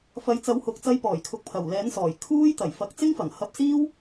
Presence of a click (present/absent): absent